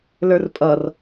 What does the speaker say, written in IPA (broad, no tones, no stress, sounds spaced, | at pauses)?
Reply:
l ə˞ r pʼ ʌ r